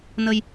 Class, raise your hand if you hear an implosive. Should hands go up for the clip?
no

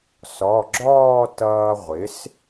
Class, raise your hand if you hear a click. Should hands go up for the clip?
yes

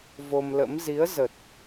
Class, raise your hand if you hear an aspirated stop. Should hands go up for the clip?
no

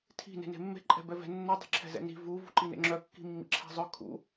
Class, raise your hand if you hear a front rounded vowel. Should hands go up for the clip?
yes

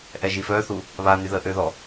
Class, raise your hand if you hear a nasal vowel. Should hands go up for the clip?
no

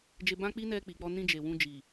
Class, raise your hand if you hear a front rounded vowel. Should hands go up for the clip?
no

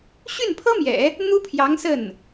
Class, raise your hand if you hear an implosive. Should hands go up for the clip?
no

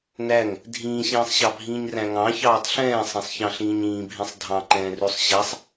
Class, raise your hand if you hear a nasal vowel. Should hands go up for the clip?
yes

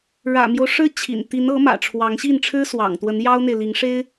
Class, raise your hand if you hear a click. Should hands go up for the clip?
no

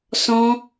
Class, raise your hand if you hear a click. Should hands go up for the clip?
no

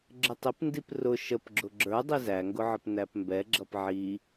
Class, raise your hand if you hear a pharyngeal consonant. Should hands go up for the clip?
yes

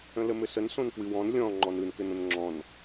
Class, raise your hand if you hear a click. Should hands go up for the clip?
yes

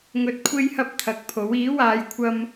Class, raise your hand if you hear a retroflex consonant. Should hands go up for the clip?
no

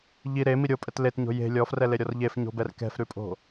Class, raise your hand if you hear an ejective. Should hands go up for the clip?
yes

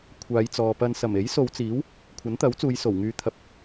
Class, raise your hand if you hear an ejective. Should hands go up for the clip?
no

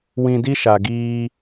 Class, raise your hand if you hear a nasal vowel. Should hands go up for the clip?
yes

